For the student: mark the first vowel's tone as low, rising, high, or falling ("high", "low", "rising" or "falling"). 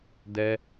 high